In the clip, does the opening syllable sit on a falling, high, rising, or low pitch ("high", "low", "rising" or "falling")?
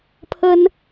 high